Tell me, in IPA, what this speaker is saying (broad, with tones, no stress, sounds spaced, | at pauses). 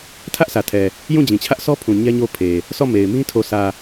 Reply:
tʰ ä˦ ʔ sʰ ä˨ tʰ ɛ˨ | j ũ˦˨ d͡ʑ ĩ˨ t͡ɕʰ ä˦ ʔ s ɔ˦ pʰ ũ˨ ɲ ɛ˦ ɲ o˦ pʰ e˨ | sʰ ɔ˦˨ m e˨ ɪ̯ m ĩ˦ tʰ o˨ s ä˨